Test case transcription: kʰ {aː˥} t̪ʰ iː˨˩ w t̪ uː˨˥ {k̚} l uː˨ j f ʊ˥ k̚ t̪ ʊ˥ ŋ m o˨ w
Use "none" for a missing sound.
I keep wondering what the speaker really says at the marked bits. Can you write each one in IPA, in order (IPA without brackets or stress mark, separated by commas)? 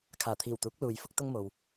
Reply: aː˨˩, k̚